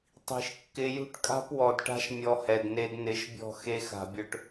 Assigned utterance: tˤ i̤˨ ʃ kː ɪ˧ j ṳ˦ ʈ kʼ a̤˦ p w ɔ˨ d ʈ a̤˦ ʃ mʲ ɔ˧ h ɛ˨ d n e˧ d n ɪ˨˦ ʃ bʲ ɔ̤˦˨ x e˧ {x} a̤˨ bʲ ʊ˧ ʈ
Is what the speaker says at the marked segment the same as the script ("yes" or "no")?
yes